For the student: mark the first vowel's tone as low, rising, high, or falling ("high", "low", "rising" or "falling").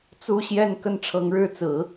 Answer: high